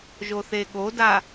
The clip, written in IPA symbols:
ʒ o θ e ɠ o d a

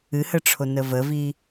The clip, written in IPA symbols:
ɨ h ə ʈ͡ʂʰ o n ə v ə v i

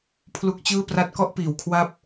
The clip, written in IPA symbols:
pʰ l u˦˥ k̚ t͡ɕ ɯː˥˩ p r a˦˥ t̚ k ɔ˥˩ ʔ p iː˩˦ w kʰ w a˦˥ p̚

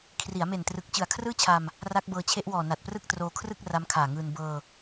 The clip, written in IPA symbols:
kʰ r i˩˦ a̯ m e˨˩ n t r ɯ˨˩ k̚ t͡ɕ ɯ˨˩ a̯ kʰ r ɯː˥˩ t͡ɕʰ aː˧ m | r a˦˥ k̚ b ɤː˧ t͡ɕʰ e˦˥ ʔ w ɔː˨˩ n a˨˩ t̚ p r ɯ˥˩ k̚ t r oː˧ kʰ r ɯ˥˩ k̚ r a˦˥ m kʰ aː˨˩ ŋ ɯː˧ n b ɤː˧

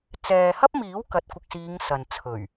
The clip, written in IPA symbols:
t͡s ɛː˨ h ɐ˥ p̚ m iː˨˥ w k ɐ˨˥ t̚ kʷ ɪ˨ k̚ s iː˨˧ ŋ s ɐ˨ n t͡sʰ ɵ˨˩ ɥ

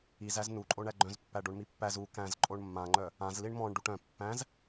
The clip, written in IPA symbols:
i z æ z n u ǃʼ o ɳ æ ɡ͡ǃ œ̃ z pː æ ɖ o ɳ m i pː æ z u k æ̃ z ǃʼ o ɳ mː ã ŋ͡ǃ œ | ã z l i ɳ m ɔ̃ ɳ ɖ u ʈ œ̃ pː æ̃ z

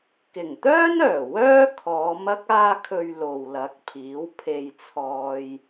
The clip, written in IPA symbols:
k ɪ˨˩ ŋ t̪ œː˥ n œː˨˩ w œː˥ kʰ ɔː˨˧ m ɐ˥ k̚ aː˥ kʰ ɵ˧ ɥ l o˨ w l ɐ˨˥ k̚ pʰ iː˨˥ w pʰ e˧ j t͡sʰ ɔː˧ j

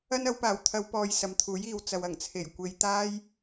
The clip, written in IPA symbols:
ɐ˥ n ɐ˨˧ w p aː˨˩ w t̪ʰ ɐ˨˧ w p ɔː˨ j s ɐ˨ m t̪ʰ uː˨˥ j iː˨ w t͡s ɐ˨ w ɐ˨˩ ŋ t͡sʰ e˨˩ j kʷ e˨ j t̪ aː˥ j

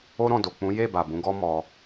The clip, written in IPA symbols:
o˦ ɾ ɔ̃˦˨ d o˨ k͡p ũ˨˦ j e˦˨ b a˨ b ũ˨˦ ɡ ɔ˦ m ɔ˧

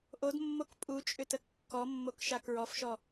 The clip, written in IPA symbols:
ʔ o d mː o k pʼ u t͡ʃʼ ʏ t ə kː ɔ mː o k ʃ a k ɹ ɔ f ʃ ɔ

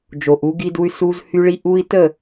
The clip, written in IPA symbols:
d͡ʒ o˨ ʔ u˨˦ ɡ i˦ d u˦ y̯ s u˦ z h y˦ ɭ i˦ ʔ u˦ i̯ t ə˦˨

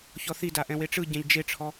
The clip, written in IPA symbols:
ç ɔ θ i d a ʔ ɛ̃ w e ʈ͡ʂ ɯ ɟ ɛ̃ ʎ d͡ʒ e ʈ͡ʂʰ ɔ

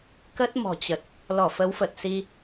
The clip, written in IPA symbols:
k ə˦˥ t̚ m ɔ̤˨˩ t͡ɕ ə˨˩ t̚ | l ɔ˧˩ f ə˨˦ w f ə˨˩ t̚ s i˧

